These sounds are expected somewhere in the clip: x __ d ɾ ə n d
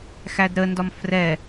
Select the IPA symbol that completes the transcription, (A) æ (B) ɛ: A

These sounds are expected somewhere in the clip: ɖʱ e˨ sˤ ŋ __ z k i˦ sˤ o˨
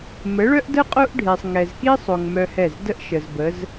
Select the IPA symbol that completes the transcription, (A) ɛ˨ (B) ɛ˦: A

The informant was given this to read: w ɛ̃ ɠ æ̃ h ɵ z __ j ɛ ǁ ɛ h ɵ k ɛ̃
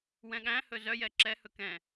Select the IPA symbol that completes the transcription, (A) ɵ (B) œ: B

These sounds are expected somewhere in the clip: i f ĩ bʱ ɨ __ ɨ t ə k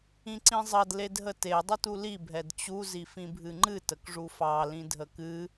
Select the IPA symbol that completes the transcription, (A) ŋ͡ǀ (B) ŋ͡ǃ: B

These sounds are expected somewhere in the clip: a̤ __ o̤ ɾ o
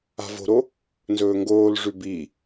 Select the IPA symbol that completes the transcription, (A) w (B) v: B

